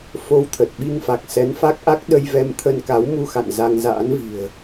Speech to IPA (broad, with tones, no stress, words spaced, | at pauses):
fo˧wt̪ʰə˨˩t̚ɓi˧ŋfa˨˩k̚ sɛ˨˦nfa˦˥k̚ʔa˦˥k̚ ɗə˧jvɛ˧mt̪ʰə˧n ka˨˦wmu˧xa̰˧˨n za˧ŋza̰ː˧˥nvi̤˨˩ə̯